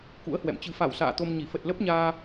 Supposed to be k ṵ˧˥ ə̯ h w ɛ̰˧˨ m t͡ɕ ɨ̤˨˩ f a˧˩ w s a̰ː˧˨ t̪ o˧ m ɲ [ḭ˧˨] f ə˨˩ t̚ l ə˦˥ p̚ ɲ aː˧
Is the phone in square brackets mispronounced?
yes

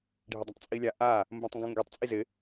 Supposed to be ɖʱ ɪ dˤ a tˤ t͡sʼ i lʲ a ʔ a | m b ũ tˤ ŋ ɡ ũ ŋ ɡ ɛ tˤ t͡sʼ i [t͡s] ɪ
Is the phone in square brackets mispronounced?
yes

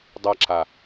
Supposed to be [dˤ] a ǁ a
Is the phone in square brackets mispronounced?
no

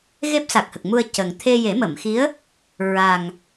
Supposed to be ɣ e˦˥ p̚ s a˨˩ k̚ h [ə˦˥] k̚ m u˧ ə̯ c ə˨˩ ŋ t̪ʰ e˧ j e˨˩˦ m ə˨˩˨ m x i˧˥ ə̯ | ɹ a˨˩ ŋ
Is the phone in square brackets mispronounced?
yes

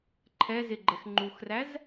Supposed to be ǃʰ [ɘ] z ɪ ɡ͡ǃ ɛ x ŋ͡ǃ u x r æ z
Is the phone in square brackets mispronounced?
yes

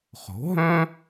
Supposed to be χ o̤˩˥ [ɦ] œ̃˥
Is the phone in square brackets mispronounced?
no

